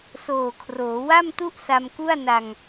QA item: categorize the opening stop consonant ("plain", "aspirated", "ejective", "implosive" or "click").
aspirated